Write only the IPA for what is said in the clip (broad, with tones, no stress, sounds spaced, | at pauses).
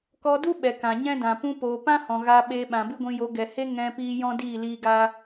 k ɔ˧ d u˦ ɓ ɛ˨ k ã˨ ɲ ɛ̃˦ d ã˨ p ũ˧ p oː˨ p ã˦ h ɔ̃˨ ɣ aː˧ ɓ eː˧ ɓ ã˨ b ɨ˦ ɡʷ ĩ˧ j o˨˦ ɡ ɛ˨ h e˦ ŋ ɛ̃˧ p iː˧ j ɔ̃˦ d iː˦˨ l iː˦ ɡ a˦